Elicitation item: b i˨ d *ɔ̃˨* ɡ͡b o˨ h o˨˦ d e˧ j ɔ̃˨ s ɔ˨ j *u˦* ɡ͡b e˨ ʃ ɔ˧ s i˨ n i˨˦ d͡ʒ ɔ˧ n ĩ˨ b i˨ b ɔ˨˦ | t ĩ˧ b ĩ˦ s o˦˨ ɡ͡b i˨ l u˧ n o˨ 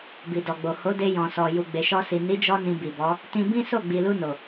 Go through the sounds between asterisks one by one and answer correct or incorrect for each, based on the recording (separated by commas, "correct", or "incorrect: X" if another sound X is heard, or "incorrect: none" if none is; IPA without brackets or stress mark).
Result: incorrect: ɔ˨, incorrect: u˨